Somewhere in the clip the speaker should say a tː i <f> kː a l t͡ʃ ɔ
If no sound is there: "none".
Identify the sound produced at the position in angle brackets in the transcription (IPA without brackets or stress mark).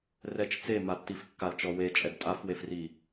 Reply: f